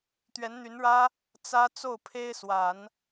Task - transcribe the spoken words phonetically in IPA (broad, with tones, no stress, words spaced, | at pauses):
t̪ɥɛ˧˥nn̪y˧˥nɻä˥ | t͡sä˥ t͡so˥˩ʊ̯pʰe˥ɪ̯swa˨˩˦n